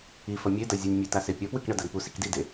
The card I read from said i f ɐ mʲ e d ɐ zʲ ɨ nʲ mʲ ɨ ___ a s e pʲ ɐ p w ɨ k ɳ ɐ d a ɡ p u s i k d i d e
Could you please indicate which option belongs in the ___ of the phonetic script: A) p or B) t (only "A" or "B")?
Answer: B